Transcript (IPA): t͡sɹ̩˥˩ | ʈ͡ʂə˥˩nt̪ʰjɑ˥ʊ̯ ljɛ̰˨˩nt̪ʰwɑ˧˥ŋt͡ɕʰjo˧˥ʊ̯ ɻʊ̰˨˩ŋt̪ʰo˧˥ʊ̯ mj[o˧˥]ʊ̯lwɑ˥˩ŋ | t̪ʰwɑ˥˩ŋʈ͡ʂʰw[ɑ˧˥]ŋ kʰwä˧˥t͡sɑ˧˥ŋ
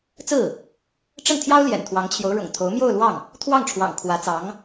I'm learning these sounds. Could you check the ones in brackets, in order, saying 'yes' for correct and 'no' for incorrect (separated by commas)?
no, no